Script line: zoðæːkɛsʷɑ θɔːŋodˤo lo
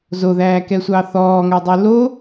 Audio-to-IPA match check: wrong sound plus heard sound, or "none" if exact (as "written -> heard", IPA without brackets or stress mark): none